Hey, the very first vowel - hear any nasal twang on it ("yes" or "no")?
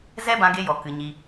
no